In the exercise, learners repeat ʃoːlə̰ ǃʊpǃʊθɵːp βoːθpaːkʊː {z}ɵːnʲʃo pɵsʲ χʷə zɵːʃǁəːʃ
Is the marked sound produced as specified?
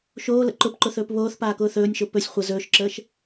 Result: no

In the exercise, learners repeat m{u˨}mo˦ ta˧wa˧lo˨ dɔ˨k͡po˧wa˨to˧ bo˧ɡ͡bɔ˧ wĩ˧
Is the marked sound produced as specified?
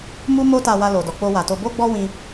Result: no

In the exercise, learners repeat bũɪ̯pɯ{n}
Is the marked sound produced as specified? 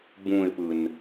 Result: yes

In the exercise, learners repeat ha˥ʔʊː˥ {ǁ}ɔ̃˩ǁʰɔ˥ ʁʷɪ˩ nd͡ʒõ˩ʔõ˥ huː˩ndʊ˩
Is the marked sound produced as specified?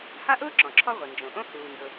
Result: yes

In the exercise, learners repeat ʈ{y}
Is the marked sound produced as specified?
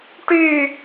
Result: yes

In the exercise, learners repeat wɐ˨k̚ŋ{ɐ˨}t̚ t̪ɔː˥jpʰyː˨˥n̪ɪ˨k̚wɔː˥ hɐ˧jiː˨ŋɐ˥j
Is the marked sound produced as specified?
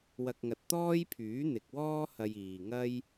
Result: yes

